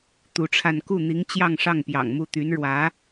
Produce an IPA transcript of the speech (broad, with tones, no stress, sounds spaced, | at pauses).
t̪ u˧˥ ʈ͡ʂʰ a˥˧ n k u˥˩ n̪ i˧˥ ŋ t͡ɕ j ɑ˥˧ ŋ ʂ ɑ˥˩ ŋ p j ɑ̰˨˩ ŋ m u˥˩ t̪ y˧˥ n ɻ w ä˧˥